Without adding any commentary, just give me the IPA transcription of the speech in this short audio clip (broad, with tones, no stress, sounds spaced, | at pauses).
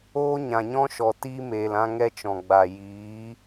oː˦ ɲ ã˨ ɲ ɔ̃˦ ʃ ɔ˨ t iː˦ m eː˨ l ã˦ ŋ ɛ˦ t͡ʃ ɔ̃˨ ɡ͡b a˨ j iː˨˦